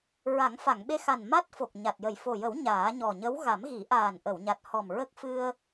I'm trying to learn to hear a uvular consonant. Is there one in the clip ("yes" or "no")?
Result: no